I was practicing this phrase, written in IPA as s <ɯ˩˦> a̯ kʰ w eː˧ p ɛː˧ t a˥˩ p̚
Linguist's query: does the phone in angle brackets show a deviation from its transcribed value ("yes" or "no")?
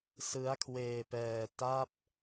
yes